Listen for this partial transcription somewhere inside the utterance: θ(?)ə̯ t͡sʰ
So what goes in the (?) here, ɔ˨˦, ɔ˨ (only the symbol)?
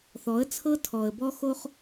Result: ɔ˨˦